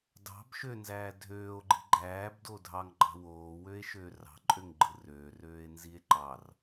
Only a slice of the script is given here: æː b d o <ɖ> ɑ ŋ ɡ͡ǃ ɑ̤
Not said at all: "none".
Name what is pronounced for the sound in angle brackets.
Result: dʱ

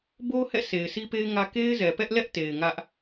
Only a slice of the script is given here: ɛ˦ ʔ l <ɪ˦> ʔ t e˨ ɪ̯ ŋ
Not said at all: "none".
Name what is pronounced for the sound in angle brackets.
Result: ɛ˦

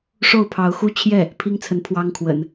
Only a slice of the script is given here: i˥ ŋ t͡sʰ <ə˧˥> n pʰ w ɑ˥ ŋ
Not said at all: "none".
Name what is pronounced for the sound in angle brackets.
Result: ə˧˥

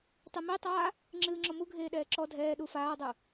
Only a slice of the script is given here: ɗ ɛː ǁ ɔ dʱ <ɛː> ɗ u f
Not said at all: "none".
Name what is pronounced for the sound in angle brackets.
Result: ɛː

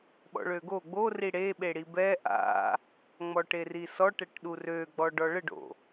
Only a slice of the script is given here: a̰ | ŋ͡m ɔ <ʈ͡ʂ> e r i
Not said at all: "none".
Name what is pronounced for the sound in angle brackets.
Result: ʈ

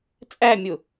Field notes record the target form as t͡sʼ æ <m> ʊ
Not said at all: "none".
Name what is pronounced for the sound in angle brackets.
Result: mʲ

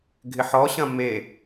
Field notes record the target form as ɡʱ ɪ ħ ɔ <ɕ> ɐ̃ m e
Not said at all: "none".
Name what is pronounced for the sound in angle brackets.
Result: ɕ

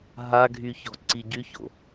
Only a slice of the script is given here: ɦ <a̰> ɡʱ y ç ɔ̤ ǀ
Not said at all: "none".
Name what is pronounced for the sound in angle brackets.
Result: a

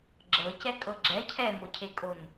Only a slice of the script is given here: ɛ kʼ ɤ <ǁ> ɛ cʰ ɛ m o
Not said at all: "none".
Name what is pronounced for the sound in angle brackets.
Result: ɡ͡ǁ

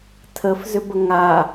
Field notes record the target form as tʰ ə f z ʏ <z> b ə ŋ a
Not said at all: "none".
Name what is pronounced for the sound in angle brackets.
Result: none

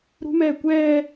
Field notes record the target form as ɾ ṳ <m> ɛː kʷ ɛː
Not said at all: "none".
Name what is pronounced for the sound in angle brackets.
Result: m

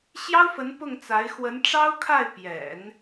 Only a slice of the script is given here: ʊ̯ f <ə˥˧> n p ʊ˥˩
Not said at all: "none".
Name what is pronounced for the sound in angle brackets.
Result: ə˧˥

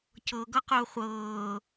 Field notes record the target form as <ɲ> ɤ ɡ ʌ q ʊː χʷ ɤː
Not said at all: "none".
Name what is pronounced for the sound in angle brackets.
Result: c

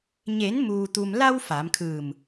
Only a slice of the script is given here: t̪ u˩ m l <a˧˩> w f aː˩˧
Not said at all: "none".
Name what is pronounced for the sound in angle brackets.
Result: a˧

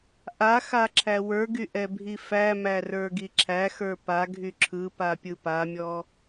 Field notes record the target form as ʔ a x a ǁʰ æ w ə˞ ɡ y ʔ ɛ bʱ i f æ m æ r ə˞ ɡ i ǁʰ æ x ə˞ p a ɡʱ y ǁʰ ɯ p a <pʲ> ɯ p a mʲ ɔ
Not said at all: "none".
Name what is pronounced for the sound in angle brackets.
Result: pʲ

